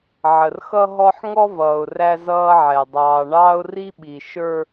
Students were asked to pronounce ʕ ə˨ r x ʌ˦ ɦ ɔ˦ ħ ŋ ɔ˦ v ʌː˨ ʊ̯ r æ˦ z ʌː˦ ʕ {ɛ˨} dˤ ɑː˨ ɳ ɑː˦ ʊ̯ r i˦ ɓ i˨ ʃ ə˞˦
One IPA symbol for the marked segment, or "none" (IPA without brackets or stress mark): ɛ˨